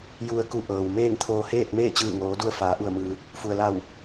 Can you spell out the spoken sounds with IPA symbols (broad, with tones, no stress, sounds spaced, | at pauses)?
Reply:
j u˧ ə̯ k u˧ ʔ ɤː˩ w m eː˥˨ ŋ t̪ʰ oː˧ h eː˥˨ t̚ m eː˥˨ t͡ɕ ɯː˧˩ ŋ oː˩˧ d u˧ ə̯ f aː˩˧ ʔ u˧˩ ə̯ m ɯː˩ | f u˩ ə̯ l a˧˩ w